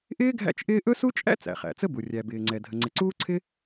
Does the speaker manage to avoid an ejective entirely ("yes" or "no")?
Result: no